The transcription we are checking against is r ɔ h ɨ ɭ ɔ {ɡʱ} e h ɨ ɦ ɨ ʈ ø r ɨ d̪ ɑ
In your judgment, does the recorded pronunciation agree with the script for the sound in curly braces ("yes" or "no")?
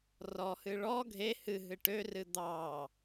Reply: yes